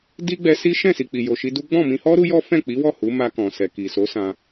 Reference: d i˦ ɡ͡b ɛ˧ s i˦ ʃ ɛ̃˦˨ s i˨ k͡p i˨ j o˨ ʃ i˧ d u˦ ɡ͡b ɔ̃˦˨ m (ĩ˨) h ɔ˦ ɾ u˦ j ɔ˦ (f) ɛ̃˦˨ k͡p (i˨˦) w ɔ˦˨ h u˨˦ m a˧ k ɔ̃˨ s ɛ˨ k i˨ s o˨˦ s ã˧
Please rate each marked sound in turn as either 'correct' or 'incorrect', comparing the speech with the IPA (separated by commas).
incorrect, correct, correct